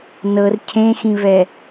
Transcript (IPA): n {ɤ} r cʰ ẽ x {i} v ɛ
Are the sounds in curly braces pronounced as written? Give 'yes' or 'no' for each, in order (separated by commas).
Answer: yes, no